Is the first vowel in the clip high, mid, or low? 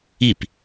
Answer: high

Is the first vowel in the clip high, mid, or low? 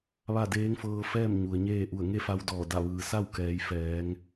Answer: low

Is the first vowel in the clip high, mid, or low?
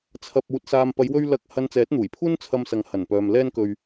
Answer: low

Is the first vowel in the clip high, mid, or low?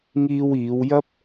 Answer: high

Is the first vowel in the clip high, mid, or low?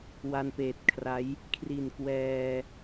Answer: low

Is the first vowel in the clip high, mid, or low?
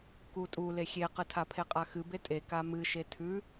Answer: high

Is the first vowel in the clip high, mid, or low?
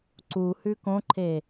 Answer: high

